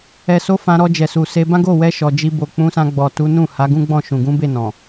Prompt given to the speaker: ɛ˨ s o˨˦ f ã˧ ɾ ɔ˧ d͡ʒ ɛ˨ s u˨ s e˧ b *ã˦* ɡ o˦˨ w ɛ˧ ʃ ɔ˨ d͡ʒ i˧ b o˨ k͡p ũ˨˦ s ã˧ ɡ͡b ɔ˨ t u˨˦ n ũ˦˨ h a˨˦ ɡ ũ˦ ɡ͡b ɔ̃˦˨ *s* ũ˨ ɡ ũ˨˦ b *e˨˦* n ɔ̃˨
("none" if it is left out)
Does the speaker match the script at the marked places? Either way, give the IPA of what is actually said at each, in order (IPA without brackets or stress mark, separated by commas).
ã˦, ʃ, e˦˨